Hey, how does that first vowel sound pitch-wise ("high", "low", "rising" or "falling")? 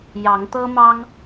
rising